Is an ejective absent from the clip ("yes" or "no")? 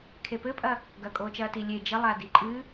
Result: no